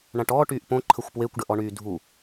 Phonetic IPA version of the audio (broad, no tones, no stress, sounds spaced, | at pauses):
ɳ ã ʈ ɔː ʈ yː ʔ p õ ǃʰ ə xʷ p w e kʷ ɖ ə ʔ ɔ ɳ yː dʱ u